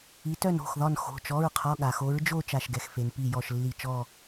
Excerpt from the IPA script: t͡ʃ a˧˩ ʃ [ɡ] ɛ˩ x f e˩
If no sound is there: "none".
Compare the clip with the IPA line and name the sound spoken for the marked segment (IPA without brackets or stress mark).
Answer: ɡ